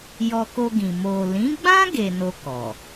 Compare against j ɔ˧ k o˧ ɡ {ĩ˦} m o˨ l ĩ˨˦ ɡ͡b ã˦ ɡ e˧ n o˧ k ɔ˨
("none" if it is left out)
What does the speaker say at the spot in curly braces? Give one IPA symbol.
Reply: ĩ˨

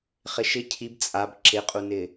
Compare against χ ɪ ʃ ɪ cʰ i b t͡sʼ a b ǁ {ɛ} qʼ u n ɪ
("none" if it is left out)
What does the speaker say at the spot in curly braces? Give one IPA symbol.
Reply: ɪ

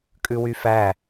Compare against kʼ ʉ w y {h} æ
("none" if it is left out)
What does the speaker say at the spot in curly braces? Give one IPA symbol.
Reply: f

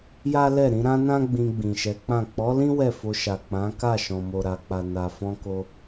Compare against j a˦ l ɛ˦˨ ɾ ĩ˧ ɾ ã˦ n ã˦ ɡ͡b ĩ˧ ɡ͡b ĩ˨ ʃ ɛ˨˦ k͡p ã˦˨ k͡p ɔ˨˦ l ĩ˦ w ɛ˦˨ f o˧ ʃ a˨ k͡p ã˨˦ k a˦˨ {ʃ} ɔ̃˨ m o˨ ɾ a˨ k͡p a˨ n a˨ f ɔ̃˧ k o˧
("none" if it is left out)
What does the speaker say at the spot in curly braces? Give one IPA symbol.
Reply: ʃ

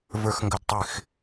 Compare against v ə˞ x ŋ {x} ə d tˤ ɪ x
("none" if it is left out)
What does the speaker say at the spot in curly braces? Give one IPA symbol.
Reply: ɡ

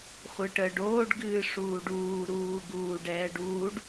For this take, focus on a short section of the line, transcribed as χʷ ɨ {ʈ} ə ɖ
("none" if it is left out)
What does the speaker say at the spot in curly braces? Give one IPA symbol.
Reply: ʈ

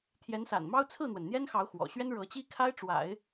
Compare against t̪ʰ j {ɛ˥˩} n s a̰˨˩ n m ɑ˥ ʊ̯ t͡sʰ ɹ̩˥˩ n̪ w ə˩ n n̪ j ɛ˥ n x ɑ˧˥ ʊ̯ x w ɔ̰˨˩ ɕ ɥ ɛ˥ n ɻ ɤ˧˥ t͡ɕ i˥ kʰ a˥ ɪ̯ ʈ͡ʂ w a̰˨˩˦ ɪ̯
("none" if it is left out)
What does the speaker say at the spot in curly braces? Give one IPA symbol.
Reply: ɛ˧˥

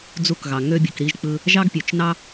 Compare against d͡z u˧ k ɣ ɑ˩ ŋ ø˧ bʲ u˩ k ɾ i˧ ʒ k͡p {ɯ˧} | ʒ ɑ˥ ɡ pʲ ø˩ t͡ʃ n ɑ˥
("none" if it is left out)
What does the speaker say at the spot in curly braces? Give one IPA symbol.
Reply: ɯ˧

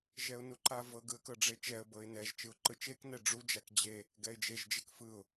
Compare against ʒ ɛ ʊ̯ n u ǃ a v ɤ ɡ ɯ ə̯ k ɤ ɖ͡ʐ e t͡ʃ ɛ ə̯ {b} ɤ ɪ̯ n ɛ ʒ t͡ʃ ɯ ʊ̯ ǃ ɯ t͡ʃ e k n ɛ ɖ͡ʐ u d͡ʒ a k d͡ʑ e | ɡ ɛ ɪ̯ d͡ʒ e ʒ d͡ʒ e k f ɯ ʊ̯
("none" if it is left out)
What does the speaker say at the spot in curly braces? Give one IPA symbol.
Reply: b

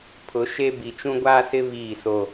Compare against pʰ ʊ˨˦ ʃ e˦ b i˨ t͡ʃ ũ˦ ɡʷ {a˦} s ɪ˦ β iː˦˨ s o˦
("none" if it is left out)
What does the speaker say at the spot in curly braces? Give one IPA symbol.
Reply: aː˦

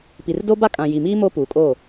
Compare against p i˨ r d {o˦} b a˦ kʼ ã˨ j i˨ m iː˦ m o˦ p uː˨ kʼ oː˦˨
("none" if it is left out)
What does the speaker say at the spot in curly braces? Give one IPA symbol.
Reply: o˦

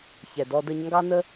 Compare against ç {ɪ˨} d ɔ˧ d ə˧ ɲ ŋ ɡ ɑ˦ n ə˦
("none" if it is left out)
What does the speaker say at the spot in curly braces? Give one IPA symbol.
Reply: ɛ˨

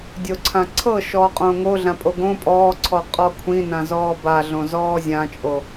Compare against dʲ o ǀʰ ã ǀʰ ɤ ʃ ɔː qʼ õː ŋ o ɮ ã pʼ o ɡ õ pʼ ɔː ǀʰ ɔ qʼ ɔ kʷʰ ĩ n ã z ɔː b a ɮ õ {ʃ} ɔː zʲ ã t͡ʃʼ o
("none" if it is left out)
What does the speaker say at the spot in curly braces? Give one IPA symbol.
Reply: z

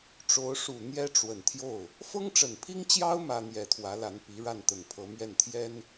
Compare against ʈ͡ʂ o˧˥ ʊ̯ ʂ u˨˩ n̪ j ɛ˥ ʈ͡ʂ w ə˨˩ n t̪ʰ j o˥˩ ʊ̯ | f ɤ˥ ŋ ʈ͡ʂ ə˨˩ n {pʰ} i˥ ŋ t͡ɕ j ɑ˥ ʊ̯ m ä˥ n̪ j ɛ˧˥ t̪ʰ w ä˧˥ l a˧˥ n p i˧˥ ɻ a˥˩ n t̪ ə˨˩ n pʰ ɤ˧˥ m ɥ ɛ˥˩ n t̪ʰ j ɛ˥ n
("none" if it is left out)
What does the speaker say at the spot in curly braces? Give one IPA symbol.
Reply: pʰ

